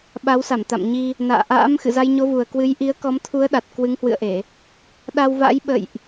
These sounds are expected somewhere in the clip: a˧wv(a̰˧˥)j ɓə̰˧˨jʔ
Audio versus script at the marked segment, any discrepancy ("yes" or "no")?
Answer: no